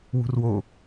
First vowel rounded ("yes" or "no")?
yes